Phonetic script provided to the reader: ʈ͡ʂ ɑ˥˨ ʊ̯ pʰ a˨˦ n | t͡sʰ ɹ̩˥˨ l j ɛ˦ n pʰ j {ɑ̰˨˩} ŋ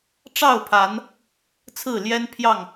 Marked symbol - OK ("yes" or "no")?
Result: no